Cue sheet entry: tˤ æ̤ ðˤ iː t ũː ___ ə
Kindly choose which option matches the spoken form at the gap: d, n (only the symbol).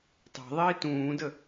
d